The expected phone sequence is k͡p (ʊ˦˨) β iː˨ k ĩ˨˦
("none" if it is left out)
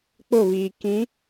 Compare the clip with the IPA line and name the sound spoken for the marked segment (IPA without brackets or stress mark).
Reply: ʊ˦˨